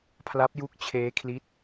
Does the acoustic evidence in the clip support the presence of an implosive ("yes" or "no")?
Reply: no